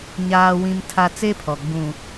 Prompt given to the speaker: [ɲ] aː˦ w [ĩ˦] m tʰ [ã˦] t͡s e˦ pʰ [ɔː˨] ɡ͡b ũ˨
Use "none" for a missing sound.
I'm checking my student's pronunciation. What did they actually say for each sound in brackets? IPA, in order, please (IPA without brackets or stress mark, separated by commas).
ɲ, ĩ˦, a˦, ɔ˨